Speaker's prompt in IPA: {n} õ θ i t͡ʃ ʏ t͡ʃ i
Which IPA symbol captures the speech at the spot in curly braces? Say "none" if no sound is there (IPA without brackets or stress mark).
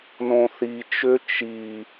n